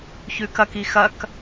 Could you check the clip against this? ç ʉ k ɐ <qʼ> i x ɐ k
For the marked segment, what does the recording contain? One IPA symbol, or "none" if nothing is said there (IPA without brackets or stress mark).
k